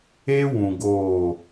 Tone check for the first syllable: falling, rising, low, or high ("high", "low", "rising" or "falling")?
high